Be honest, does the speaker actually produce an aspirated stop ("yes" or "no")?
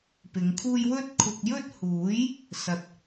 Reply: yes